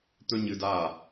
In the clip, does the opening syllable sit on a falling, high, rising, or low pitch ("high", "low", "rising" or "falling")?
high